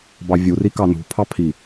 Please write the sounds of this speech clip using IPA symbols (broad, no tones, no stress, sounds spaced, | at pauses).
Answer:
b ɑ vʲ u r i k ɑ n ṳ pʰ ɑ pʰ i